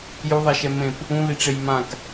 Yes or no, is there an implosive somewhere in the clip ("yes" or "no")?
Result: no